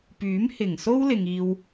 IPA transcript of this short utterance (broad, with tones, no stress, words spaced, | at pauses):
pyː˨˥mhɪ˨˩ŋso˥wlɪ˨ŋ iː˧w